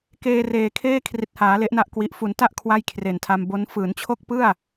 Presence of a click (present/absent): absent